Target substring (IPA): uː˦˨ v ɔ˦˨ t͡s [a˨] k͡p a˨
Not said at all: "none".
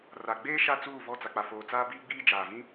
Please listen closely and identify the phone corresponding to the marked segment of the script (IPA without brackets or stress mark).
a˨